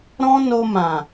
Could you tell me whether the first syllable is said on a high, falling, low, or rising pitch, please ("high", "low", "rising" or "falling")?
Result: high